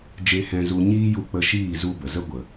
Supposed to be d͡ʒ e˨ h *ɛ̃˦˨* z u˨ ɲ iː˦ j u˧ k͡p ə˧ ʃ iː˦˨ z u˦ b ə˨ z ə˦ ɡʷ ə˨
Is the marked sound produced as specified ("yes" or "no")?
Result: no